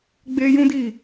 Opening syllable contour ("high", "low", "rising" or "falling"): high